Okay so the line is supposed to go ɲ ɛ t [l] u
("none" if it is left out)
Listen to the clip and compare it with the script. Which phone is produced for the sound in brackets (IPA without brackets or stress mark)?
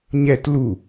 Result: l